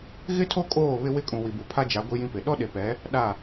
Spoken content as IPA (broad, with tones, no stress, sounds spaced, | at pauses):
ɣ ɪ˦ tʰ o˦ kʼ oː˦˨ β ɪ˦ w ɪ˦ kʼ ũ˨ w i˨ b u˨ pʰ a˦ d͡ʒ a˨˦ ɡʷ i˦ j ĩ˦ p ɪ˨ ɗ ɔ˦ ɗ e˨ p ɛ˨˦ | ɗ a˦˨